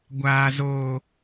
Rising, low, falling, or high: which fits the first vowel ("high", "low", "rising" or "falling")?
low